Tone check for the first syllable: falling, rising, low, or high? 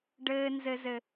low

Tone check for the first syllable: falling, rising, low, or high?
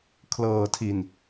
low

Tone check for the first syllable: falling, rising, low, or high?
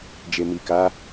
low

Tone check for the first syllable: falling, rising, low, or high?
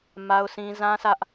high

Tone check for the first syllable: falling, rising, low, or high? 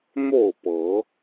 falling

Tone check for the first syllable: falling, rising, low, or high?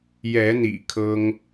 rising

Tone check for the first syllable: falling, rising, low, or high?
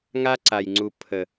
high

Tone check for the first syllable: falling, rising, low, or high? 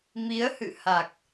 rising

